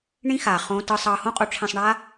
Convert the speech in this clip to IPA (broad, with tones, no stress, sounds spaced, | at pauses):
ɳ ĩ˦ x aː˨ χ õː˦ t ɯ˦ sˤ ʌː˦ h õ˦ qʼ o˧ ʈ͡ʂʰ ẽ˧ sˤ ɳ aː˦